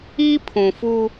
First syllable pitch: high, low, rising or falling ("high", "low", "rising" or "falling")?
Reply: high